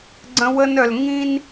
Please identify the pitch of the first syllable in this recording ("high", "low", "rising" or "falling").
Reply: high